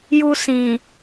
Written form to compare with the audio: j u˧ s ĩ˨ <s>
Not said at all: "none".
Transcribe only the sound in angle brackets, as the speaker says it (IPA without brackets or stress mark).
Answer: none